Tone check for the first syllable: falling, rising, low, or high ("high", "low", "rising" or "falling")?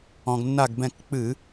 low